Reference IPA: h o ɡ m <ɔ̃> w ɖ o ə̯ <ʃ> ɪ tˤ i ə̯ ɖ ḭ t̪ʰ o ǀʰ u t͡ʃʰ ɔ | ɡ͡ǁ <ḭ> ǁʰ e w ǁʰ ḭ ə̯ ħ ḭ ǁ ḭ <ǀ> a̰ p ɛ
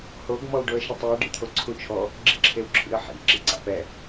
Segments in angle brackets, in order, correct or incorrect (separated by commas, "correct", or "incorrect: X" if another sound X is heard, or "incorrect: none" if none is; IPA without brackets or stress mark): incorrect: ɔ, correct, correct, correct